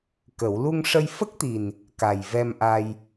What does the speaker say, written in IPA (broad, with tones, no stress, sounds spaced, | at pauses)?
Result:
k ə˨˩˦ w l u˧ ŋ ʂ ə˧ j f ə˦˥ k̚ t̪ i˨˩ n | k a˨˩ j v ɛ˧ m ʔ a˧ j